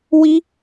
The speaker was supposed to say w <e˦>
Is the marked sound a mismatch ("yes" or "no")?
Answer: yes